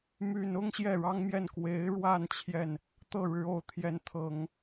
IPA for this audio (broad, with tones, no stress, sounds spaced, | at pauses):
m y˨˩ n ʊ˥˧ ŋ ɕ j ɛ˥˩ ɻ ɑ˥ ŋ m j ɛ˥˩ n k w e˧˥ ɪ̯ ɻ w a˥˧ n t͡ɕʰ j ɛ˥˩ n | t̪ ɤ˥˩ ɻ ɻ̩˧˥ o˨˩ ʊ̯ t̪ʰ j ɛ˧˥ n t̪ʰ ɤ˨˩˦ ŋ